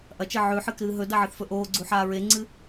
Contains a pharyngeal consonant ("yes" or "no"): yes